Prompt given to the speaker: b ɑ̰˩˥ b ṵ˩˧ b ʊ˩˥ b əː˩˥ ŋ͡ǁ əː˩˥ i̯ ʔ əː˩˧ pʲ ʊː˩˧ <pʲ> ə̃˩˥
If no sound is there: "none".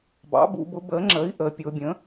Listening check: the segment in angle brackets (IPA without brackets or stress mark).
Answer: bʲ